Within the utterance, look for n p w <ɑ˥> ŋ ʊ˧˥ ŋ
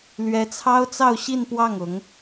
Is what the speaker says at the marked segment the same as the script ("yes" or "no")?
no